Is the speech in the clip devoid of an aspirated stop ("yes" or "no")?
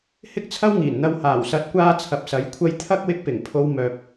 no